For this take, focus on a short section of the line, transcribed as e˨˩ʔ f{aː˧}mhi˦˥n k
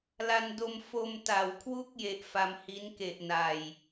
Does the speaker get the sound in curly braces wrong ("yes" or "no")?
yes